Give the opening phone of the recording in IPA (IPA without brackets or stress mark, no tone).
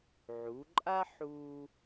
ʕ